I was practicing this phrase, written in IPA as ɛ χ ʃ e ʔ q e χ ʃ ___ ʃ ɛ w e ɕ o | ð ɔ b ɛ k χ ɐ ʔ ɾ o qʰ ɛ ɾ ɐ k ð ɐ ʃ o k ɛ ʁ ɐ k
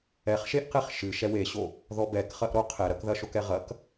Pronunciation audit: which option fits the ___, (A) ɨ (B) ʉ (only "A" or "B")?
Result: A